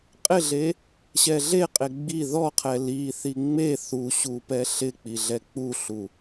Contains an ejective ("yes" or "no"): yes